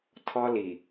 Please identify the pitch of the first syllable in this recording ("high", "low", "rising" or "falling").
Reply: high